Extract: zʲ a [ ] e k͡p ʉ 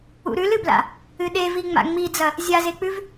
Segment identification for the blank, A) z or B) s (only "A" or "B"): A